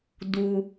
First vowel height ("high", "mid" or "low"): high